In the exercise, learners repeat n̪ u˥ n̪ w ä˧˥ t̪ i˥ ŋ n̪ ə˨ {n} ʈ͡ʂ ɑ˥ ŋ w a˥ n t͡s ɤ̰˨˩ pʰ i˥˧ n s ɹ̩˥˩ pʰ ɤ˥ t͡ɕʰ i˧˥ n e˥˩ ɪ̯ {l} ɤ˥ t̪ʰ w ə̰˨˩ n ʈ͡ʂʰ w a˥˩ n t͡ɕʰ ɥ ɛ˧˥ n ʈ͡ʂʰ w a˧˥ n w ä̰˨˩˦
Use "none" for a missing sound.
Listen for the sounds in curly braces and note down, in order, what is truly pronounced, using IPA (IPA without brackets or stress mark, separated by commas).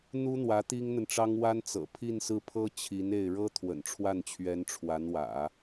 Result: n, ɻ